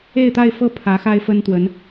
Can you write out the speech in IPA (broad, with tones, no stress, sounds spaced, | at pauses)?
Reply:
e˥˧ ɪ̯ t̪ a˥˧ ɪ̯ f ɤ˥˩ pʰ ä˧˥ x a˥ ɪ̯ f ə˥ n t̪ w ə˧˥ n